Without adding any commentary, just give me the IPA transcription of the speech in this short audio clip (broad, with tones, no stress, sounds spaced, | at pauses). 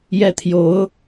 j ɛ˥˩ t̪ʰ j o˧˥ ʊ̯